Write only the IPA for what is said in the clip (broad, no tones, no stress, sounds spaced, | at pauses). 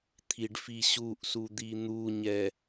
t̪ʰ i ɖ f i ɕ u ʔ s u d̪ i n̪ u ɲ ɛ